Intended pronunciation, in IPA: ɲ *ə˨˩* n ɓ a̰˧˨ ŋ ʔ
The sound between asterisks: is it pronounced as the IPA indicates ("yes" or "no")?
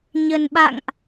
yes